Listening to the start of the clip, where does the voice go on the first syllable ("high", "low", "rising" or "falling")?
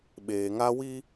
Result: low